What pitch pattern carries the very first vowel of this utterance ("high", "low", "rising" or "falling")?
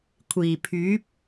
low